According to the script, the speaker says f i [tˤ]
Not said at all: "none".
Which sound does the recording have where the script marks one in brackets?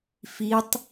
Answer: tˤ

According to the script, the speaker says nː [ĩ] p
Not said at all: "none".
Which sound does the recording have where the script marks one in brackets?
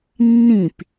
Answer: ĩ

